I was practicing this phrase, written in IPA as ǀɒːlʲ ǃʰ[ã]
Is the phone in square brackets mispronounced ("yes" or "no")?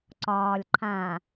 no